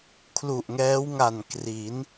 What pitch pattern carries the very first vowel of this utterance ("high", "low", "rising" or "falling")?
low